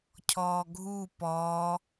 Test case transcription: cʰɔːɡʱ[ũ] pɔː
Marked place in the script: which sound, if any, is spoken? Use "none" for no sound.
u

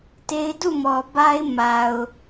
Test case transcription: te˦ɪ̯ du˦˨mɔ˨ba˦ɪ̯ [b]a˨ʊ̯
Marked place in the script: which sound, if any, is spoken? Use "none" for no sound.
m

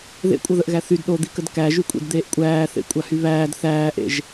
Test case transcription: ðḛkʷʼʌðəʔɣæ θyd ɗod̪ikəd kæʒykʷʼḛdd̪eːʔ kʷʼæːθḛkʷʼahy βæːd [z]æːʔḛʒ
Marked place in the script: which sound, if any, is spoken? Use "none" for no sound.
θ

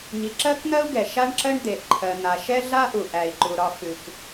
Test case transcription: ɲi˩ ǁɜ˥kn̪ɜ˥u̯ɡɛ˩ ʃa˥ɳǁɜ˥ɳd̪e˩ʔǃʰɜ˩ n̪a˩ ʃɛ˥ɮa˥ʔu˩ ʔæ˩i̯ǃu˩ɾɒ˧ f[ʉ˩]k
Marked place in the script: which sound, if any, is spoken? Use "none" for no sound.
ʉ˩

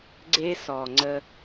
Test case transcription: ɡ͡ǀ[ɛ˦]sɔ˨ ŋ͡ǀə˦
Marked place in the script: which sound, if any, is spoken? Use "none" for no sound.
e˦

